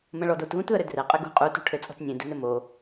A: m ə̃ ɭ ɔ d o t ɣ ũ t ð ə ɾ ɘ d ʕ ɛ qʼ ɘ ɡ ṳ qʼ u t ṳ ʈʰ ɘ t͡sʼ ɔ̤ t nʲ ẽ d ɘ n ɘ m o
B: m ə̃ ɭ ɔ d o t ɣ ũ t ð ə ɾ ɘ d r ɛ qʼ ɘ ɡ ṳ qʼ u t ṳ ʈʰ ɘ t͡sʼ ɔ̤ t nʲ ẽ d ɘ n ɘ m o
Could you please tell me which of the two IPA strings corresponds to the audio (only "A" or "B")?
B